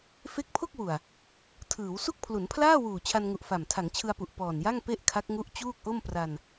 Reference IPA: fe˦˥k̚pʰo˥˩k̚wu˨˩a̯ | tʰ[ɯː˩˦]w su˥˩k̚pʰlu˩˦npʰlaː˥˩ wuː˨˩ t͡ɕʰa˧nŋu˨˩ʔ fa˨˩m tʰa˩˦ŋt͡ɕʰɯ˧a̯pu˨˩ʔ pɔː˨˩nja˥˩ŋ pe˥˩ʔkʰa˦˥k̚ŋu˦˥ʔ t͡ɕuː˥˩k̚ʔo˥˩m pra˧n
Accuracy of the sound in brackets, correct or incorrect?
correct